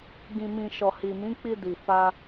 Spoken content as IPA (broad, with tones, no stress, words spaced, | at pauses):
ɡĩ˨mĩ˨ ʃɔ˨hi˨ mĩ˨˦k͡pi˧di˨fa˧